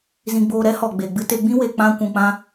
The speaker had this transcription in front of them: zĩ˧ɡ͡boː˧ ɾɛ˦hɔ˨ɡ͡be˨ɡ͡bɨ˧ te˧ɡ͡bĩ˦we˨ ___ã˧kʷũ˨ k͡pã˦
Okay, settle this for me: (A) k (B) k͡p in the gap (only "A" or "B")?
B